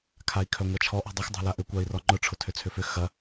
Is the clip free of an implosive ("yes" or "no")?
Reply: yes